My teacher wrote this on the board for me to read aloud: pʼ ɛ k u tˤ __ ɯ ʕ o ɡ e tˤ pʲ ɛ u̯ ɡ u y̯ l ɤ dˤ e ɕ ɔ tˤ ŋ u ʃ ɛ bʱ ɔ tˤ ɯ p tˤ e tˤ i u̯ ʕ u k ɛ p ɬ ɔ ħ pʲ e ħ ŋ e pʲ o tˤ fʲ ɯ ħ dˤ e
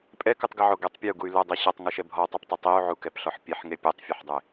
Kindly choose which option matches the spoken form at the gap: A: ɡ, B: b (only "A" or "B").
A